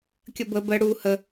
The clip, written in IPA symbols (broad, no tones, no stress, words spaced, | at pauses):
kʲəbə bə ɽu hə